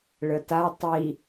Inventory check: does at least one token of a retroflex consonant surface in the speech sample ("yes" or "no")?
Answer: yes